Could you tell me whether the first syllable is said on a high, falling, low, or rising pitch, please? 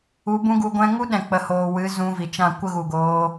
rising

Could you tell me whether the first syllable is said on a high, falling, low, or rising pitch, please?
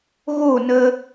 falling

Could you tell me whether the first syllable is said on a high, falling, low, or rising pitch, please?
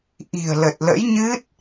low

